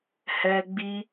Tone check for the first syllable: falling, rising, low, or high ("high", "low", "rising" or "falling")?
high